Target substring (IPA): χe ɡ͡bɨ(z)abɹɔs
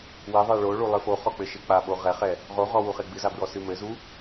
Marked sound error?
no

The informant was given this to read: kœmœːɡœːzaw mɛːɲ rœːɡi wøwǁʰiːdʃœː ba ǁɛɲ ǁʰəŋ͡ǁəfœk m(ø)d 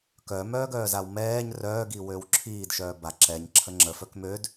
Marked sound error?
no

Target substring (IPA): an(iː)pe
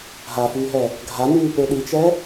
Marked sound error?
yes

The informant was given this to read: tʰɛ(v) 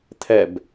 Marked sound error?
yes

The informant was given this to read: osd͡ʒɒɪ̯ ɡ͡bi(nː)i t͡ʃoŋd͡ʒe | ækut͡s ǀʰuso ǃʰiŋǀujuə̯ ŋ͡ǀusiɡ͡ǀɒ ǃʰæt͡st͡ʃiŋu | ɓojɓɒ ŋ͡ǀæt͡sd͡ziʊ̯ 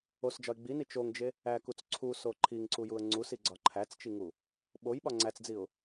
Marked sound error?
yes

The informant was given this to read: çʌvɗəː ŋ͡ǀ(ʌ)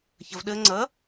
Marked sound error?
no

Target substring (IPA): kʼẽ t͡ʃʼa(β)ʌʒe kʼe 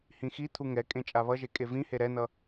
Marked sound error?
no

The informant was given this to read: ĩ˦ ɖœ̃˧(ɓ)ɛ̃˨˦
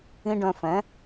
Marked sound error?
yes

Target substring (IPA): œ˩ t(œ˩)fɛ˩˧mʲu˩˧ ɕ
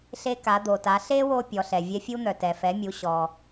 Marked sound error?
yes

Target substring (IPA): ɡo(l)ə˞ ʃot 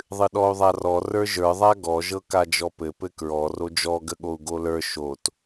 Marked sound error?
no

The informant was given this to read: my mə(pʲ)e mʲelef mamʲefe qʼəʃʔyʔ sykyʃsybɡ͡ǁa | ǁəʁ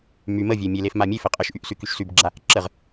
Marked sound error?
yes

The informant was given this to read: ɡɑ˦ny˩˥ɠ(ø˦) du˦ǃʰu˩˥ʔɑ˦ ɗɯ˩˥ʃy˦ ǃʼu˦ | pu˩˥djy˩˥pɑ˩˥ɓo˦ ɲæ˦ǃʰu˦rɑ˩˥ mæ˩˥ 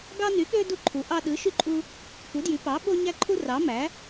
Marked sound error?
no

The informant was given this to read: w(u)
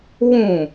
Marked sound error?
yes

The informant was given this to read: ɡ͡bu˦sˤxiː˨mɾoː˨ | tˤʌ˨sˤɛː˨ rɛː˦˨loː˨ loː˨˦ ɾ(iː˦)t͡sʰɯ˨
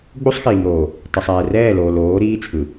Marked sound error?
no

